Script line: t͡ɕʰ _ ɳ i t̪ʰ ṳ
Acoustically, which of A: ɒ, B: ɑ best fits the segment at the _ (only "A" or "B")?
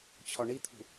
A